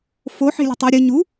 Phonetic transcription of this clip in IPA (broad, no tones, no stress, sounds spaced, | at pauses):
f o ħ e̤ lʲ e̤ tˤ ø ɾʲ ə ɲ u